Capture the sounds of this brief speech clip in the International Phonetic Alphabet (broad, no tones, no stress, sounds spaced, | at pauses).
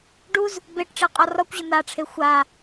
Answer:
ɖ u z | b e ʈ ʈ͡ʂ e qʼ ɒ r ɒ kʷ ʑ ə n̪ a ʈ͡ʂʰ e xʷ a